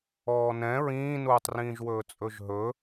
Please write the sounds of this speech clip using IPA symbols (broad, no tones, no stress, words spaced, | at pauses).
ɔːnɛ̃ ɹĩːnuːtˤrĩːʒwɵː t͡sʼɵʒɦɵ